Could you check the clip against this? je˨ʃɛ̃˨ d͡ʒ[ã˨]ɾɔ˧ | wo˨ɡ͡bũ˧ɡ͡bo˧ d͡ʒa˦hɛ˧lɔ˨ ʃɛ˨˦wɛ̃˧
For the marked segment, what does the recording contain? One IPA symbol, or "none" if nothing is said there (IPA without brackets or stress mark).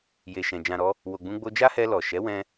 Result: ã˨